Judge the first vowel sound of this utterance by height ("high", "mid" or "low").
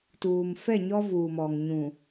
high